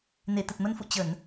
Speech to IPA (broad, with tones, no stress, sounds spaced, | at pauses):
n e˧˩ t̪ ə˨˩ t̚ m ə˧ n f ṵ˧˨ t͡ɕ ə˧˩˨ n